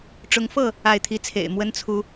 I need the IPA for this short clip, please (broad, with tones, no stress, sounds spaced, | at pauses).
ʈ͡ʂ ʊ˨˦ ŋ f ɤ˥˨ | a˥˨ ɪ̯ t̪ʰ i˦ t͡sʰ ḛ˨˩ ɪ̯ m w ə˦ n t͡sʰ u˨˦